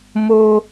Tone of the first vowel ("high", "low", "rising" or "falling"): high